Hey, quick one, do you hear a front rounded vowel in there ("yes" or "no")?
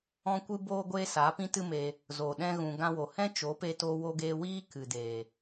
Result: no